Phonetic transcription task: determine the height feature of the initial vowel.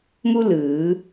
high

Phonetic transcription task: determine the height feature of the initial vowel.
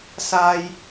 low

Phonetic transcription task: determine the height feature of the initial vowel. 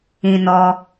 high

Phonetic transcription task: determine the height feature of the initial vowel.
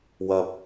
low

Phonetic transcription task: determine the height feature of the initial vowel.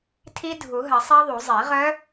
high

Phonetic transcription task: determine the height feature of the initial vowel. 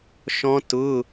mid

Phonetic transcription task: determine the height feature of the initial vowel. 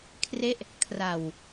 mid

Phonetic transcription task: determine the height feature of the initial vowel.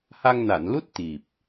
low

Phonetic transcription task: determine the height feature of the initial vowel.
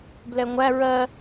mid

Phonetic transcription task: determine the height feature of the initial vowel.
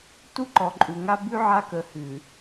high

